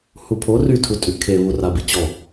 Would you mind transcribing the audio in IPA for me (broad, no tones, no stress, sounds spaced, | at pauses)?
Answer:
h u pʰ o r y tʰ u tʼ y kʰ e β u r a b i t͡ɕ ɔ